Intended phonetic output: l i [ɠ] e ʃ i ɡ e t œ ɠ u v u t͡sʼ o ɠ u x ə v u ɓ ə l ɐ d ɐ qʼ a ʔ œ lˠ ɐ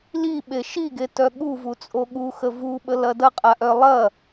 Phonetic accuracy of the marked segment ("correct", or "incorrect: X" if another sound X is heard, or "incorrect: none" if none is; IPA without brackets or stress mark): incorrect: ɓ